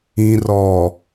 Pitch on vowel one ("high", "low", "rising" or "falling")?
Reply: low